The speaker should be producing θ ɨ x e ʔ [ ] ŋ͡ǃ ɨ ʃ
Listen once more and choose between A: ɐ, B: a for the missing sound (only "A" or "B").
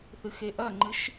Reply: A